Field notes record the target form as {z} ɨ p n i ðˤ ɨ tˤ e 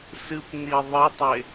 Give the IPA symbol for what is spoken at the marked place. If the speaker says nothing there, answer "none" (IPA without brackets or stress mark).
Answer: s